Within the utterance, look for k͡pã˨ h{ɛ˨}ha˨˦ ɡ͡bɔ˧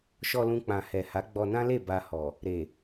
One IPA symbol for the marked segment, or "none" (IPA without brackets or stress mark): ɛ˨